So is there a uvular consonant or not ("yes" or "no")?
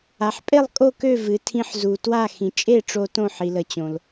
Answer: no